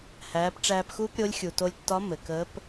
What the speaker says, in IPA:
h æː˩˧ p ʈ͡ʂ æː˧ p x uː˥ p ɾʲ o˧˥ lʲ xʲ u˩ t o˧ lʲ tː ɒ˧˥ m ɘ˩ k əː˧˥ p

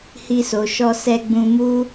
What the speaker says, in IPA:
h i˧ s o˨ ʃ ɔ˧ s ɛ˧ ɡ͡b ũ˧ m u˦

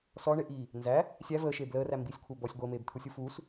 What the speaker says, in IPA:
s ɔ ɳ e ʔ iː | n z æ | sʲ æ v əː ʃ eː b l əː r æ m b i sʲ kʷʰ ɜ b ɔ sʲ ɡʷ əː m eː b t̪ʰ u sʲ u f uː s

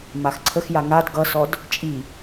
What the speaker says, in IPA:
m a x ǀʰ ə x j a ŋ a d ɡ ʌ s ɔ d | t͡ʃʼ i

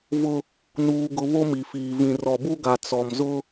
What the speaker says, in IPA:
v ʊ˦ | n uː˦ ɡ ʊ˦ β o˦ m i˨ f iː˨ v ĩ˨ r ɔ˨ b u˦ ɡ a˨ t͡s ɔ˨ m z ʊ˦

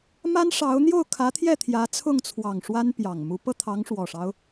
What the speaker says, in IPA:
m a˥ n ʂ ɑ˧˥ ʊ̯ n̪ j o˥˩ ʊ̯ kʰ ä˧˥ t̪ʰ j ɛ˥˩ t̪ʰ j ä˧˥ t͡sʰ ʊ˥˩ ŋ t͡sʰ w ɑ˨˩ ŋ ʂ w a˥ n p j ɑ˨˩ ŋ m u˧˥ p ɤ˥˩ t̪ʰ ɑ˧˥ ŋ ʂ w ɔ˨˩ ʂ ɑ˦ ʊ̯

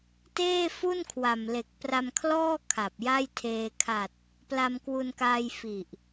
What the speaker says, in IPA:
t eː˥˩ f u˥˩ n kʰ w a˨˩ m l e˨˩ k̚ p r a˧ m kʰ l ɔː˥˩ kʰ a˨˩ p̚ j a˥˩ j tʰ eː˧ kʰ a˨˩ t̚ | p l a˧ m k w u˧ n k aː˧ j f i˨˩ ʔ

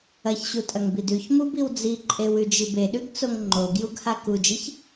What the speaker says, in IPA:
ɐ ç ɕ u tʼ ɐ ŋ b i d ʉ ç m u b i w d͡z i ǃʼ e w ʉ d͡ʒ i b e ɗ ʉ ɡ t͡s o ŋ ŋ͡ǃ o ɡ j u ɡ h a k u d͡ʒ i ç

